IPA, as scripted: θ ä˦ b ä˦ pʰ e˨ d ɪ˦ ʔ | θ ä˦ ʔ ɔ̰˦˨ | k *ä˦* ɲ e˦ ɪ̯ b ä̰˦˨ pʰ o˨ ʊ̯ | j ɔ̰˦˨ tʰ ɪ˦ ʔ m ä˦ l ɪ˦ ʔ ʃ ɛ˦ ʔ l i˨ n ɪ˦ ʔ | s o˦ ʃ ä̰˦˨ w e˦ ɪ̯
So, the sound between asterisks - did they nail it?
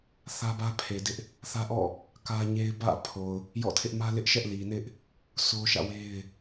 yes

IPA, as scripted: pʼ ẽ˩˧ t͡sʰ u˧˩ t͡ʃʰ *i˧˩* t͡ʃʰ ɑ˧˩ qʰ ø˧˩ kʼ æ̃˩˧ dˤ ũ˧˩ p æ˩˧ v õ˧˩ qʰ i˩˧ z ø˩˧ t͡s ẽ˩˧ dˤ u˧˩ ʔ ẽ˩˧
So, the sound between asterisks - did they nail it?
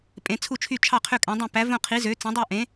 no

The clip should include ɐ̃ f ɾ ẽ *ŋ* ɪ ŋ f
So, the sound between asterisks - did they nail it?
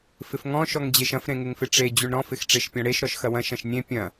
yes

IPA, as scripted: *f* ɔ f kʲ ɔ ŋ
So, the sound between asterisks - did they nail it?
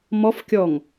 no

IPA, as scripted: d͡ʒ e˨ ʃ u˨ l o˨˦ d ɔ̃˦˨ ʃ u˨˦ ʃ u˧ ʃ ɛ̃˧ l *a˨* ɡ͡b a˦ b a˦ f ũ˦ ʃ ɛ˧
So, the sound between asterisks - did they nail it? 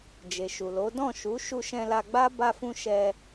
no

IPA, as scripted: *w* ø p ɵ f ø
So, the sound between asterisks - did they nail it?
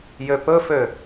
no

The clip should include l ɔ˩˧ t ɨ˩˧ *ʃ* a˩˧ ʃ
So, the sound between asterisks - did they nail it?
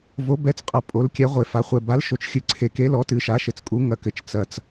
yes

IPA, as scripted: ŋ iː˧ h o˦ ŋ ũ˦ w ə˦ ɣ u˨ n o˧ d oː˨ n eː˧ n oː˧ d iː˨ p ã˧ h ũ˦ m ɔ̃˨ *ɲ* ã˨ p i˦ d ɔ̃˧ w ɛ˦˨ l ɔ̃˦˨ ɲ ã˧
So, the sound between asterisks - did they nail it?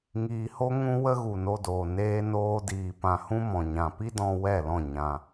yes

